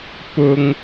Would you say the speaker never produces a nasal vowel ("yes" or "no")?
yes